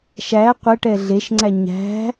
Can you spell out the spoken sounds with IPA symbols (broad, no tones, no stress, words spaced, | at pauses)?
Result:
ʃæ qʷɛʈɛ ɮeʃŋ͡ǀæ ɲæ̤